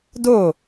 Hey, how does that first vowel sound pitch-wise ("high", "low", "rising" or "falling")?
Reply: falling